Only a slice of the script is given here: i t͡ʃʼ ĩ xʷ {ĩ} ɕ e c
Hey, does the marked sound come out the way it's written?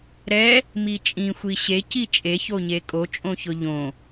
no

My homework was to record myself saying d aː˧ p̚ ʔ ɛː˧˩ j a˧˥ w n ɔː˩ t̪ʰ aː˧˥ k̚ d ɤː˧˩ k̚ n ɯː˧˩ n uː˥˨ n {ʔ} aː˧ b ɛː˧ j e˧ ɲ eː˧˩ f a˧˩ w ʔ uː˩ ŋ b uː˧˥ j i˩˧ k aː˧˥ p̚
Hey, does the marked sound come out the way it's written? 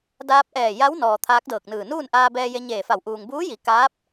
yes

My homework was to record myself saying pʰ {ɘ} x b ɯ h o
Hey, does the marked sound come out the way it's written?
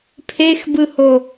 no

